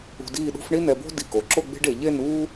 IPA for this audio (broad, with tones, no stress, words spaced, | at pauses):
ṳ˧diː˥˧ɗṳ˥f ɳi˥nɛ˧bo̤˥ di˧˩ko˩˧ǁo˥˧ ɡ͡be̤˥ɖe˩˧ ʎe˥˧nuː˥